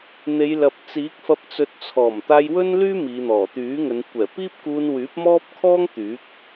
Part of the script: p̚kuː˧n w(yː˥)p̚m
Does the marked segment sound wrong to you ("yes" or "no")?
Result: yes